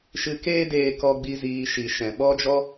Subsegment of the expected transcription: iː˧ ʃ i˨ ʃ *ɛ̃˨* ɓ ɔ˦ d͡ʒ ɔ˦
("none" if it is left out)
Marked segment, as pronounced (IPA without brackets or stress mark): ɛ̃˨